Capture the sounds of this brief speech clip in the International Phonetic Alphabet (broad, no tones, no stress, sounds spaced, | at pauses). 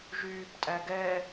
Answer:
ʒ yː p tʼ æ ɡ ɛ